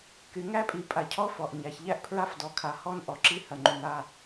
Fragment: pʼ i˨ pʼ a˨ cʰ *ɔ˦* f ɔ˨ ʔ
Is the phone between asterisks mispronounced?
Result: no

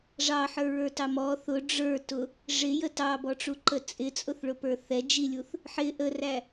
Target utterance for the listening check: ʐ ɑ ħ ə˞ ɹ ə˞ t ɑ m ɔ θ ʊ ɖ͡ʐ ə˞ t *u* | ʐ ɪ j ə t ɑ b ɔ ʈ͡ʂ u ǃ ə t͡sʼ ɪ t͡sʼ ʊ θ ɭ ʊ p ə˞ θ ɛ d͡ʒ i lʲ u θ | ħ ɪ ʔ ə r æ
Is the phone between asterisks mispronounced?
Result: yes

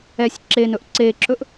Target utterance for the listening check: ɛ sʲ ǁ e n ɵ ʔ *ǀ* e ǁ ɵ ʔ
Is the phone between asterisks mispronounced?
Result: no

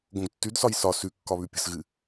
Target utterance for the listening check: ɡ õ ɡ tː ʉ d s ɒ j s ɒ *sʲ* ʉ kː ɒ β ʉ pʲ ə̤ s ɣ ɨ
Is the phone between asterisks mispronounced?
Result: yes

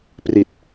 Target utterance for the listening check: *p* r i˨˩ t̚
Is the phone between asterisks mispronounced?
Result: no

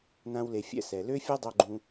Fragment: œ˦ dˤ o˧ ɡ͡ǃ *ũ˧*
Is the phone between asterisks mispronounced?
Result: no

